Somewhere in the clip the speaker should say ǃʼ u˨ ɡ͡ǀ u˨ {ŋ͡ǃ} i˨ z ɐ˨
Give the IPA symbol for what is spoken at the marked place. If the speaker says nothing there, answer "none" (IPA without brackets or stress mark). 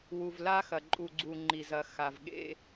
ŋ͡ǃ